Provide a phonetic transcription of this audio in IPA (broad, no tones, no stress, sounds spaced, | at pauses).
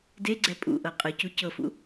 d e ɡ͡ǀ ɛ pʼ ṵ ʔ ɤ qʼ ɯ c u c ɤ f ṵ